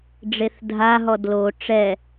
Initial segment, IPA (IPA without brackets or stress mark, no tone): ɖ͡ʐ